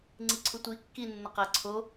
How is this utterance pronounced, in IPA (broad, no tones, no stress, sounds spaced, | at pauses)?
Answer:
ŋ͡ǀ i ǀʰ u tʷ i kː i nː ə q æ ǀʰ o